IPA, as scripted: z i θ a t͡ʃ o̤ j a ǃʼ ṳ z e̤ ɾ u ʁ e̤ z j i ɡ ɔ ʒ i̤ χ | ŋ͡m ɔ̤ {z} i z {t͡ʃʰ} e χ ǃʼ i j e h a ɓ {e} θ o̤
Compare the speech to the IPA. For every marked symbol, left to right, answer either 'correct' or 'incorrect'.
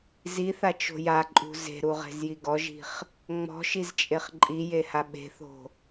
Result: incorrect: ʃ, incorrect: t͡ʃʼ, incorrect: e̤

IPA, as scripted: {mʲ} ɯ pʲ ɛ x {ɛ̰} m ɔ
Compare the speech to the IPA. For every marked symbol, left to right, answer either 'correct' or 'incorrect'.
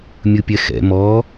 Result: correct, correct

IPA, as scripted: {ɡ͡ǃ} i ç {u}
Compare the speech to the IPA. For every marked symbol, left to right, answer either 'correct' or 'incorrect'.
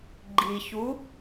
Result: correct, correct

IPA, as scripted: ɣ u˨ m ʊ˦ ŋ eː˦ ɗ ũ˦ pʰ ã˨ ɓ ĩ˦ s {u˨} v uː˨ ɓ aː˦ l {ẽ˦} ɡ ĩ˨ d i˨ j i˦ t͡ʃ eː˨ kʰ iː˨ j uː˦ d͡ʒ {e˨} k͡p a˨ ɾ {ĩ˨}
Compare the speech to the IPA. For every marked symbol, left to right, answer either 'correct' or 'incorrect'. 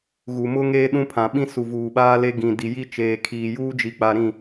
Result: correct, incorrect: e˦, incorrect: i˨, incorrect: ĩ˦˨

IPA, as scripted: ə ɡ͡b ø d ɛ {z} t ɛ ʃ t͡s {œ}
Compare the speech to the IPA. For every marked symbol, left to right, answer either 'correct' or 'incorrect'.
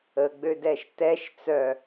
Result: incorrect: ʃ, correct

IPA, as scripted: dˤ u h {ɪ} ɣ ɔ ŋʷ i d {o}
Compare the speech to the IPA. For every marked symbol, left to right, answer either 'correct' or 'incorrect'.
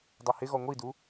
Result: correct, incorrect: u

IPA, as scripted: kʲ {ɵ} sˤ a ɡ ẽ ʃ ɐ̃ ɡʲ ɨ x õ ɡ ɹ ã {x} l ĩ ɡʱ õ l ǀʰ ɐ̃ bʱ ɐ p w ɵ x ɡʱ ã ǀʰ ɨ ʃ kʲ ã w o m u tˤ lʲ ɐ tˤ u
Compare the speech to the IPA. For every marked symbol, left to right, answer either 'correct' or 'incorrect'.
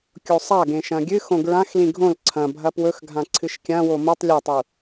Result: incorrect: o, correct

